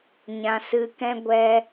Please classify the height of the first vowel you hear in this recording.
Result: low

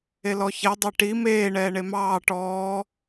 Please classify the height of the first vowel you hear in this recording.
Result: mid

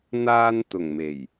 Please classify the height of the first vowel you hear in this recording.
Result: low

